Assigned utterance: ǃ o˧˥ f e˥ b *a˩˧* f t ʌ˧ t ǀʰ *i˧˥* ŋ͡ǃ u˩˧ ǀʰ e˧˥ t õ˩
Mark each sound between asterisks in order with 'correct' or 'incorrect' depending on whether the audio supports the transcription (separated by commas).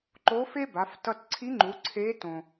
correct, correct